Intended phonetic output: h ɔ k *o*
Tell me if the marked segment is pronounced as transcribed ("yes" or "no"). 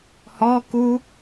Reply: no